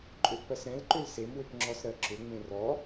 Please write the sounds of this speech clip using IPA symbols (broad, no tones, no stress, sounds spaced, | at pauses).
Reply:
ǃʼ ʏ ʔ p ɜ s ɾ ɛ̃ l ǃ ʏ l s e m w ʏ p ŋ͡ǁ ɔ s ɾ ɜ ǁ ʏ ŋ͡m ẽ r ɔ